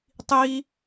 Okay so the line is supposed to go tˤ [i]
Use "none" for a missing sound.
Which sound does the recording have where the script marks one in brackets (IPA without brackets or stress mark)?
i